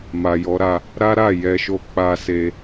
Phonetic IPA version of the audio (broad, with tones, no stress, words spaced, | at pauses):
ma˨jɔ˨˦ɾa˧ | ɾa˦ɾa˦˨ jɛ˧ʃo˦ k͡pa˦se˦